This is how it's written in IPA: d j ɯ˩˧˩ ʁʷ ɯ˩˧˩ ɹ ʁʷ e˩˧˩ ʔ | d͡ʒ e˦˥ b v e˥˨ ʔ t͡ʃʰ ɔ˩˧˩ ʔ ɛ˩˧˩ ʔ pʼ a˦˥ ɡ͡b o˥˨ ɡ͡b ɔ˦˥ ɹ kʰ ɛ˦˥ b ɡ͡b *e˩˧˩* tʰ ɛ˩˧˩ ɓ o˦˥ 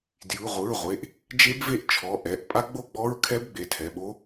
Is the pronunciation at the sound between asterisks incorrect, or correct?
correct